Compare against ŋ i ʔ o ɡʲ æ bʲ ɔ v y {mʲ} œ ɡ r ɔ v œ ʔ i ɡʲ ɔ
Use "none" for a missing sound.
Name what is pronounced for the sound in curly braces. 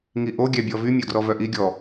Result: mʲ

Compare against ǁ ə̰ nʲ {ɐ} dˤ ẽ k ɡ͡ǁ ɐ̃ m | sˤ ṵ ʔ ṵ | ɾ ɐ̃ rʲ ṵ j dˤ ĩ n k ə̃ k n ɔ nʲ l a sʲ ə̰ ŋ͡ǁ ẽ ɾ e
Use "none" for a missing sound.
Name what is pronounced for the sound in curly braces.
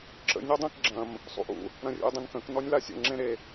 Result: ɐ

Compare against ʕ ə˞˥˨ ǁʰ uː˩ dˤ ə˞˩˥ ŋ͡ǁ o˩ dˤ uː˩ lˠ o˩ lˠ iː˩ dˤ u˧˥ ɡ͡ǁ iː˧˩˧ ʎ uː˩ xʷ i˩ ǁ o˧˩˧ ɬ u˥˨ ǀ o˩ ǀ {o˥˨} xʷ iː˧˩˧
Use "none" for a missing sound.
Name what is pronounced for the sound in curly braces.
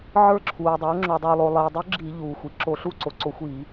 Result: o˧˩˧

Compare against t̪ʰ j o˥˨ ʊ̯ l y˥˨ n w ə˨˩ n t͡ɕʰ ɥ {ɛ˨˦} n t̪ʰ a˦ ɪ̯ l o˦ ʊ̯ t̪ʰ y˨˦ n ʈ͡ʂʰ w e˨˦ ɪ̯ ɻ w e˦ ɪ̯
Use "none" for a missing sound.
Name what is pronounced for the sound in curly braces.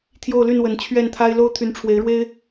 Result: ɛ˥˨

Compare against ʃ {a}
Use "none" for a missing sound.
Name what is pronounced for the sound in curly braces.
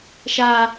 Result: a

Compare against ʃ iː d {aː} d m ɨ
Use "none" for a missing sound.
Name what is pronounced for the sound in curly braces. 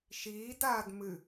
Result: aː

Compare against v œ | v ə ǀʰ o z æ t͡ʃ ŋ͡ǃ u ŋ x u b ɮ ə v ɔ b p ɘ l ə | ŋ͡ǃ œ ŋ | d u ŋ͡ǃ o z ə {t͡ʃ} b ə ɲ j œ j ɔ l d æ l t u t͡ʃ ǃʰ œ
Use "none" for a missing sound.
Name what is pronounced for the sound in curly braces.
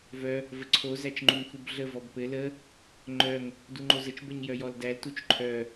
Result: t͡ʃ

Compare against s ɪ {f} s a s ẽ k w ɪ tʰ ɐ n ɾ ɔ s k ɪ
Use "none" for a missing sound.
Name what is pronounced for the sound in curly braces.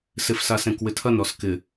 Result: f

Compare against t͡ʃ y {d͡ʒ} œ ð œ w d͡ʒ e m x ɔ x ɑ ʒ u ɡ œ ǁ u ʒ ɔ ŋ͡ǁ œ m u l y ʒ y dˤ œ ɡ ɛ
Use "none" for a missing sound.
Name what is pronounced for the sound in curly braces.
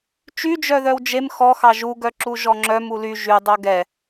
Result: d͡ʒ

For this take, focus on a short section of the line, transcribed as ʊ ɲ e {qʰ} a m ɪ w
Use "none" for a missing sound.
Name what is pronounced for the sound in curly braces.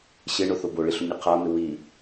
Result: qʰ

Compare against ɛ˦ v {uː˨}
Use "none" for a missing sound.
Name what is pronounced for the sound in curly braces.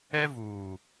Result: uː˨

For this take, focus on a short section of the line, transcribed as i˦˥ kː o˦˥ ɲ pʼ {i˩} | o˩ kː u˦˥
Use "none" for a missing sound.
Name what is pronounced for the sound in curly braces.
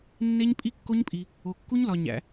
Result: i˩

